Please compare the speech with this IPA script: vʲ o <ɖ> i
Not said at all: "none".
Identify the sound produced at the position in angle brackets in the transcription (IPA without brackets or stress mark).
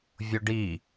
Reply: ɖ